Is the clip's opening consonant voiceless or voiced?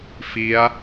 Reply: voiceless